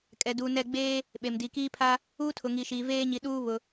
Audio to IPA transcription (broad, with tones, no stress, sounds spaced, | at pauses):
kʼ ɛ˨ d uː˨ n ɛ˦˨ ɡ͡b eː˦ | ɓ e˨ m d i˨ k iː˦ pʰ a˦ | uː˦ tʰ ʊ˨ ŋ i˨ ʃ iː˨ v eː˦ ɲ i˨ ɗ uː˦ β ʊ˨